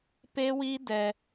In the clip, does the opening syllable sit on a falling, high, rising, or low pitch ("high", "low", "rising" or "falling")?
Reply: high